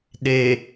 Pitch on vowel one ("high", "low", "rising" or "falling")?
low